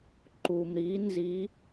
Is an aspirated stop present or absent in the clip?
absent